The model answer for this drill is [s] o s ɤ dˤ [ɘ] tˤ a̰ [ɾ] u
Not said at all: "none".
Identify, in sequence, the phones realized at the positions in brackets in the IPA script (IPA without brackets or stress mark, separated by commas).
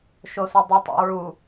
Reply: ʃ, ɘ, ɹ